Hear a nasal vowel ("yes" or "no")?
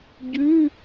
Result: no